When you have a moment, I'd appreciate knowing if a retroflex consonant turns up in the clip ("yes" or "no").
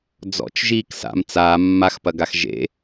no